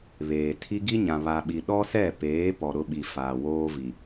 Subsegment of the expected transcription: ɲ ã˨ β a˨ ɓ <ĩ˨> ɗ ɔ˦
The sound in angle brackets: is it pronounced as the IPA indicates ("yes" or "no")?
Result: no